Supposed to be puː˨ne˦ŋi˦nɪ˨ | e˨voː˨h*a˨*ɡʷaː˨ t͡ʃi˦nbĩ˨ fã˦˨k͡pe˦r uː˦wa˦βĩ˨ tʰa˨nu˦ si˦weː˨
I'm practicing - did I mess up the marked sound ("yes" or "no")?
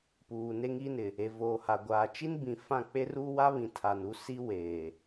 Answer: no